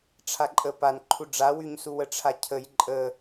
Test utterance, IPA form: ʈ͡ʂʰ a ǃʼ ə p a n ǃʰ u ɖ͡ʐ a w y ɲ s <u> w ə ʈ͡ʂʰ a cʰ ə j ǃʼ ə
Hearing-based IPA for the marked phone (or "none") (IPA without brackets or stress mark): u